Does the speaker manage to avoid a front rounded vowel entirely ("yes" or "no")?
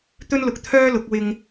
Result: no